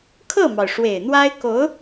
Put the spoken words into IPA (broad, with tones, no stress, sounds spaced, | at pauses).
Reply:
kʰ ɤ˥˩ m ɑ˩ ʊ̯ ʂ w e˨˩ ɪ̯ n̪ w a˥ ɪ̯ k o˧˥ ʊ̯